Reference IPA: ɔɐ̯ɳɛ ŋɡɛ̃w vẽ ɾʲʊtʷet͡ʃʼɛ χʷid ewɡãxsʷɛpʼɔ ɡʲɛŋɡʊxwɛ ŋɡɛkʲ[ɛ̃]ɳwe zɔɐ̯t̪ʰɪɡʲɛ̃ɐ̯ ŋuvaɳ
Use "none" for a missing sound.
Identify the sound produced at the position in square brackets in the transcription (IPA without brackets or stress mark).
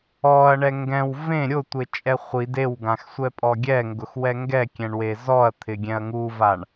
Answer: ɛ̃